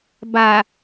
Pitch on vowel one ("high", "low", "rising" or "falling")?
low